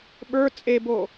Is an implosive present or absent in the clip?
present